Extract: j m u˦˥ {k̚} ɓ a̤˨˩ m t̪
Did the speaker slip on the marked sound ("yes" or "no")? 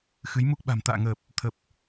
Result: no